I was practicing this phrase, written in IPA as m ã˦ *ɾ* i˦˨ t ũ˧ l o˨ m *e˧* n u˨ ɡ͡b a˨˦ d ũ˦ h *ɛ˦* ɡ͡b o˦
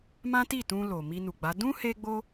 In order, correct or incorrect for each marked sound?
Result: incorrect: t, incorrect: i˧, incorrect: e˦

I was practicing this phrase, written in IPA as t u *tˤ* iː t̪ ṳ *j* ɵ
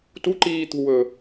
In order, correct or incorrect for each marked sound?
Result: incorrect: ǃ, incorrect: w

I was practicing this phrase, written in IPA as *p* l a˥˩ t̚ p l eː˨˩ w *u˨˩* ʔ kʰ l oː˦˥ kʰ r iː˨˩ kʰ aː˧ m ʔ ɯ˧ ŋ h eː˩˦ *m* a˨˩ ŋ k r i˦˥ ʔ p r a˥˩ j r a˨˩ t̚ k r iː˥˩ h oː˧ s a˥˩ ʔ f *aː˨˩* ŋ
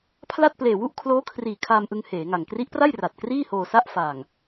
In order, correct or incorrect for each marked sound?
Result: incorrect: pʰ, incorrect: u˥˩, incorrect: ŋ, correct

